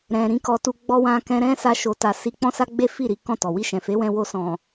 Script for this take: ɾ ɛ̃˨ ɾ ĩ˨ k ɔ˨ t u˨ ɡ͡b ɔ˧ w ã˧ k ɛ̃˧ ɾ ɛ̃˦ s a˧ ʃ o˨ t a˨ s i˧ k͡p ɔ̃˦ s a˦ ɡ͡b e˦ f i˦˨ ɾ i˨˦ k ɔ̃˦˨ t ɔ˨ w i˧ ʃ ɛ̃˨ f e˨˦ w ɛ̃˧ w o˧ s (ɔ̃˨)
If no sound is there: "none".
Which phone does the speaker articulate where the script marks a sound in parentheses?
ɔ̃˨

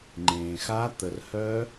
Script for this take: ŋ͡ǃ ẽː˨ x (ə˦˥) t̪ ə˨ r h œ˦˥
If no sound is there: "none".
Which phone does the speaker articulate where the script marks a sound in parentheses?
a˦˥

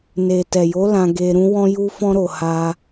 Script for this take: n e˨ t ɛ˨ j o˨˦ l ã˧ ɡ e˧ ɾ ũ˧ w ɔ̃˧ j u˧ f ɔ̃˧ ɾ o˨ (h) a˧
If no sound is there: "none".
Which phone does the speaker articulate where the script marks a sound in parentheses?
h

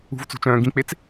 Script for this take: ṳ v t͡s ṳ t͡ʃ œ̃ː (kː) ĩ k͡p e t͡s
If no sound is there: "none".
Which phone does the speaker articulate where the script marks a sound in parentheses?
ɡ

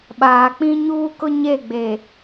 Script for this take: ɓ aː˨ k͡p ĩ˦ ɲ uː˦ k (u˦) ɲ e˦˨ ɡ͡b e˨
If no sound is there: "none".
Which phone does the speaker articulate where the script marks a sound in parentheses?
ʊ˦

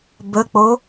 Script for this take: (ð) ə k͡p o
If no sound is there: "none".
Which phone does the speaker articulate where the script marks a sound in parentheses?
b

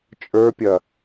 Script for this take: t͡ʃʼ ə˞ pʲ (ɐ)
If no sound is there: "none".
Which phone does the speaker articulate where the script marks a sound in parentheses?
ɐ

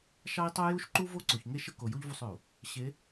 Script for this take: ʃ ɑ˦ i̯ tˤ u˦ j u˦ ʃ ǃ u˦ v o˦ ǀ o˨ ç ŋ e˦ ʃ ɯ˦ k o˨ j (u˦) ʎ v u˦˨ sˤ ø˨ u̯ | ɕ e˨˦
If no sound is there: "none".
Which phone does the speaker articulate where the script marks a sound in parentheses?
u˦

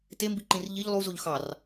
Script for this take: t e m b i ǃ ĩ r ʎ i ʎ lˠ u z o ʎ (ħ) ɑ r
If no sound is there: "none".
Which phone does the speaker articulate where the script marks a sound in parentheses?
x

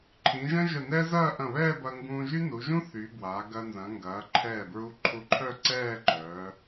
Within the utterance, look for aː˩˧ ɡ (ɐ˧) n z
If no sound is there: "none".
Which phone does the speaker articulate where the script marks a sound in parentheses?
ɐ˧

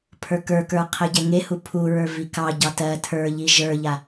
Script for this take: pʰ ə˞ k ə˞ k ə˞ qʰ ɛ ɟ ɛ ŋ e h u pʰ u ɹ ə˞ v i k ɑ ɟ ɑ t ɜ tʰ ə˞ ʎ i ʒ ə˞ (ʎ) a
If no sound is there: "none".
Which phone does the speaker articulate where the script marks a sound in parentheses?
ʎ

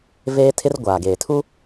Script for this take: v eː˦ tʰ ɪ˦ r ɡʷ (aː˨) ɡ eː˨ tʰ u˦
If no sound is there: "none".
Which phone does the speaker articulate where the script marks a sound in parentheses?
aː˨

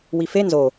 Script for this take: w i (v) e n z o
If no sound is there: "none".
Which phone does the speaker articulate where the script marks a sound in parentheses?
f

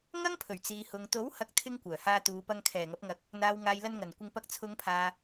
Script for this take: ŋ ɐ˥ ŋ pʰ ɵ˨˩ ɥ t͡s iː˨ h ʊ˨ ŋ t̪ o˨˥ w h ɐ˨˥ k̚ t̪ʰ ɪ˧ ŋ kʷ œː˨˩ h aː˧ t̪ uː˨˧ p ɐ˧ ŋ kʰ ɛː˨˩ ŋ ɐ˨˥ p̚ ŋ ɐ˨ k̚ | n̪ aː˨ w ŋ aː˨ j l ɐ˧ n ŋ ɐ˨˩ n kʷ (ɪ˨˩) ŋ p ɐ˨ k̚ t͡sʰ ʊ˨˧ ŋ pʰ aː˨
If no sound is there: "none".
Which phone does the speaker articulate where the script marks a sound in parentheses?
ɪ˧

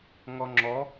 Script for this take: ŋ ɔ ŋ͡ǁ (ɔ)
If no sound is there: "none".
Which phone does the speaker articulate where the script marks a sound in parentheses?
ɔ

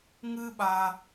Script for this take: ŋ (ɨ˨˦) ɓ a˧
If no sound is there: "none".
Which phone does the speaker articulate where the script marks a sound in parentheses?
ɨ˦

